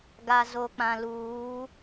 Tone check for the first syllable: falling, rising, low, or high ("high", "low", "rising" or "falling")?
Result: low